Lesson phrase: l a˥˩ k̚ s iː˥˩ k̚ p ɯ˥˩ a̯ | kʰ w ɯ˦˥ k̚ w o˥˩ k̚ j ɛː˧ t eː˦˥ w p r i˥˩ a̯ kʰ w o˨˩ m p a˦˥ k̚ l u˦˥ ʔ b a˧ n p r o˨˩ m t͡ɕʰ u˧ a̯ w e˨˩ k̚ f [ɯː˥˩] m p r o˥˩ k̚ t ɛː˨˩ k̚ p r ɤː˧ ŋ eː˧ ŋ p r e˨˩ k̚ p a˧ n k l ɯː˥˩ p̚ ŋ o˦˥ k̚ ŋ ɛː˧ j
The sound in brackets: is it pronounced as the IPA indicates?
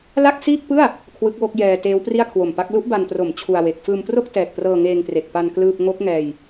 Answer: no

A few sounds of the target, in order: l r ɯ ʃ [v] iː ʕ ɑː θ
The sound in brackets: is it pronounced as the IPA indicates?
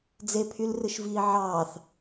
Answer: yes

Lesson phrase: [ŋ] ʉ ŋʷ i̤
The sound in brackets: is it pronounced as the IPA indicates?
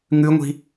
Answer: yes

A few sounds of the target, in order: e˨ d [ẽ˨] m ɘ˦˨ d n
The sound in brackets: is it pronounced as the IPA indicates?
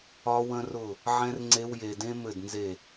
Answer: no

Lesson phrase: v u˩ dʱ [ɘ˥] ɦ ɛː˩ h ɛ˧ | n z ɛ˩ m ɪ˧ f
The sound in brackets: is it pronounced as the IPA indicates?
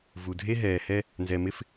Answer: no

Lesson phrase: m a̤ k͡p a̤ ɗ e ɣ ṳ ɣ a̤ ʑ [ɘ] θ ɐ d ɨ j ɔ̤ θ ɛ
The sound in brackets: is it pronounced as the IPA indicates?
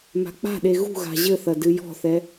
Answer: yes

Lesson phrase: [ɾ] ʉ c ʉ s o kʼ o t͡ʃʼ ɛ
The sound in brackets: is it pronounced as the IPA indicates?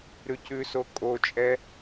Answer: yes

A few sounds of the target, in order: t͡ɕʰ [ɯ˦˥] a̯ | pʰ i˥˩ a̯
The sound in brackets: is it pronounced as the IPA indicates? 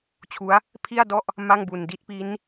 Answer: no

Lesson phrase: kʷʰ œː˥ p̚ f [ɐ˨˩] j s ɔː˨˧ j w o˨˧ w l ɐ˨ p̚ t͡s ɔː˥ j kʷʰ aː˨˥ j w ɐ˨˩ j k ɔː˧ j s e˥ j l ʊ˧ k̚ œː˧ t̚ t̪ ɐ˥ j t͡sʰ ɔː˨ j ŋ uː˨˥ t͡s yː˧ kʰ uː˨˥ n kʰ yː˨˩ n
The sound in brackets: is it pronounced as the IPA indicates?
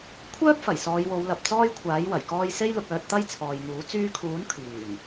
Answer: yes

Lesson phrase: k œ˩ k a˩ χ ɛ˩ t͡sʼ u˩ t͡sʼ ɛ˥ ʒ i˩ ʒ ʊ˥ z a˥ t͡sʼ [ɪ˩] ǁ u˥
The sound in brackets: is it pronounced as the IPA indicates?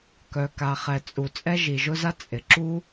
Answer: yes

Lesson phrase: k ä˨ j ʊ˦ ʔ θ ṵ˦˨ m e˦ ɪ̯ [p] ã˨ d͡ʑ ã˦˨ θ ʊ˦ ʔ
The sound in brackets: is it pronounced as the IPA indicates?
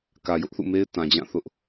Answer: no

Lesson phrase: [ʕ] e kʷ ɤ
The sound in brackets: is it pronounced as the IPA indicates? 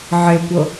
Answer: yes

